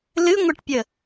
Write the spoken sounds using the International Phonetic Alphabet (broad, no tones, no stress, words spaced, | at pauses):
lɨŋʷɛʈpʲə